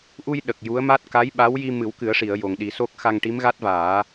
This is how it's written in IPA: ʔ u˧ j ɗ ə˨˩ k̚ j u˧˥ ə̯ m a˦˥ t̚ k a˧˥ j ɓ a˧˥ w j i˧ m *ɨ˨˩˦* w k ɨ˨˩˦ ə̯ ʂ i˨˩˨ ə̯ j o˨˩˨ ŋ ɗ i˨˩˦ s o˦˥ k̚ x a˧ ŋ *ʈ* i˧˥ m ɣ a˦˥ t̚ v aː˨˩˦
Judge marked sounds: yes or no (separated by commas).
yes, yes